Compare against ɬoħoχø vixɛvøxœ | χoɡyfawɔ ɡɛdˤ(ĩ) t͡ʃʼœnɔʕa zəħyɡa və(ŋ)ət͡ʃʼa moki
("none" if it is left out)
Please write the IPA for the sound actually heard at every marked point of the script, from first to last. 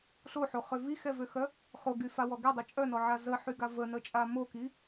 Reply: i, n

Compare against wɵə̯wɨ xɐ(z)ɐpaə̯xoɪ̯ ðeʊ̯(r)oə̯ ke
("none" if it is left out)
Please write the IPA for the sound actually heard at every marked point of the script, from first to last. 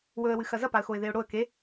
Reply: z, ɽ

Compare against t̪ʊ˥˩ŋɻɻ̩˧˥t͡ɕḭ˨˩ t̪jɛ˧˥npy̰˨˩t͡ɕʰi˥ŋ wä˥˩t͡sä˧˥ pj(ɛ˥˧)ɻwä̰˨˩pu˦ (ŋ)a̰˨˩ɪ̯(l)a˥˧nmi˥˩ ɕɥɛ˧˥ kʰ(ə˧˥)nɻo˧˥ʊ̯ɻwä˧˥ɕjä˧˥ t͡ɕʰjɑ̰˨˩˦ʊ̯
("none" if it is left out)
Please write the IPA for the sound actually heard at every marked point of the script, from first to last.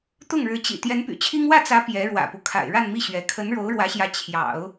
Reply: ɛ˧˥, kʰ, ɻ, ə˧˥

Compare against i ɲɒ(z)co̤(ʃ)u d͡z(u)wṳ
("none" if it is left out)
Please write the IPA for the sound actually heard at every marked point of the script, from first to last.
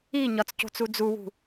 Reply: t͡s, t͡s, u

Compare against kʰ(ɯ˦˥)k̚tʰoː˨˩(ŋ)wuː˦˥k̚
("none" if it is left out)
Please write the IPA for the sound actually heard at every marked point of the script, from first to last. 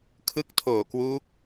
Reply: ɯ˦˥, k

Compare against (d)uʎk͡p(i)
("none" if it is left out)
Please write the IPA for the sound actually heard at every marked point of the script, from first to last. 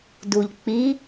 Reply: d, i

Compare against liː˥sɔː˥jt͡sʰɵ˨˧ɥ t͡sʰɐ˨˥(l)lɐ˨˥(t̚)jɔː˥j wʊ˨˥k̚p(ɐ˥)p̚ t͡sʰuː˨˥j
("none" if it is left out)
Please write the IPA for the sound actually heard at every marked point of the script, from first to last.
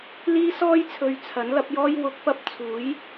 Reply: n, p̚, ɐ˥

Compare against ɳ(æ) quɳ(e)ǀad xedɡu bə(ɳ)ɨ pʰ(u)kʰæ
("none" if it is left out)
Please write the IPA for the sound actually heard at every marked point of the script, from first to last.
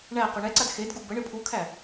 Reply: æ, ɛ, ɳ, u

